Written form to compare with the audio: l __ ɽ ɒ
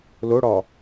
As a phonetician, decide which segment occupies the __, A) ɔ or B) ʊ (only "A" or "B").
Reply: B